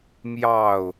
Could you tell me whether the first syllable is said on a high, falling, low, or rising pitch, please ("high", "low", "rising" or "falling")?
falling